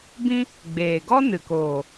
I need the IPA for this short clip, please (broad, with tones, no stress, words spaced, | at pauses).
bĩ˦ | ɡ͡beː˨ɡɔ˦nɨ˨koː˨